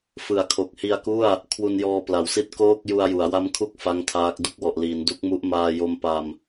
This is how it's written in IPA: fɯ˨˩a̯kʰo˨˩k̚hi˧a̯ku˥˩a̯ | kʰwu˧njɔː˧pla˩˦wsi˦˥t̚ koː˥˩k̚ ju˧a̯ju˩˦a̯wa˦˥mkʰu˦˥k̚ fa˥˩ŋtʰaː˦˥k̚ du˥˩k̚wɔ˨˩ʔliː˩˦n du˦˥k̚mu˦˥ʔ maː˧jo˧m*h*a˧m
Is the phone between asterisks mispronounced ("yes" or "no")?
yes